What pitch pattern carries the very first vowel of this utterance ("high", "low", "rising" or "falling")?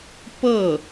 falling